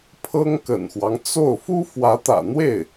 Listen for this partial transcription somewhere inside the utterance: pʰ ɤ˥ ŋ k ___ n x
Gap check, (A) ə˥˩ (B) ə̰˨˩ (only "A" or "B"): B